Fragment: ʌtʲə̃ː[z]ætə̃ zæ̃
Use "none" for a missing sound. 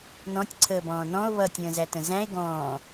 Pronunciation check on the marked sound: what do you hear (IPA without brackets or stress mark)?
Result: z